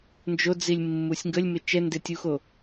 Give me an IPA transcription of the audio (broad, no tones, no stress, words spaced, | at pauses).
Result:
nd͡ʒod͡zilʲ mːusʲŋɡəlʲmɪ t͡ʃɛndetʲuxo